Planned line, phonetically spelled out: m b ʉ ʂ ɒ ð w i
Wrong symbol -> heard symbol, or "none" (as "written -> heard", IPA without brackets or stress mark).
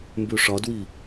ð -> d